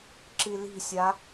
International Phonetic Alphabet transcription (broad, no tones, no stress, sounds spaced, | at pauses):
ǁ i l i̤ sʲ a